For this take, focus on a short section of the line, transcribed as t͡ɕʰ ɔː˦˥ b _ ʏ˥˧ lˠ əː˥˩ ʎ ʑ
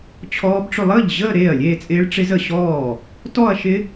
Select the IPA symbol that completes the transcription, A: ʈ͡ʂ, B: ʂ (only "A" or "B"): A